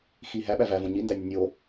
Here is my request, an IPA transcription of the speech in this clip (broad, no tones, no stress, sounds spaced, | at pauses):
x i ɦ æ ɓ æ v æ v õ ɲ i n d æ nʲ ə nʲ o